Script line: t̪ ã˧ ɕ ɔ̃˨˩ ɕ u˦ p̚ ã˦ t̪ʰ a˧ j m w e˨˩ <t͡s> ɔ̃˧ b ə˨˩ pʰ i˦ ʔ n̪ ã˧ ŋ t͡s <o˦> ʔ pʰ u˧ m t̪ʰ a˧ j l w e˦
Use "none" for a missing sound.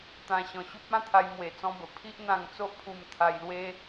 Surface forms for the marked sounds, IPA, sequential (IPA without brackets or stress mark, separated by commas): t͡s, o˦